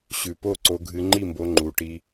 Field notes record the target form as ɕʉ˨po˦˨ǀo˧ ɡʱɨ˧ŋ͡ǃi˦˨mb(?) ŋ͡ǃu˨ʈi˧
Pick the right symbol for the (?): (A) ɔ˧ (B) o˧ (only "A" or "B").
B